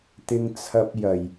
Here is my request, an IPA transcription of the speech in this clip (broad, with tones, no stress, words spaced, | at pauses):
t̪ɪ˧ŋt͡sʰɐ˧p̚jɐ˨˩j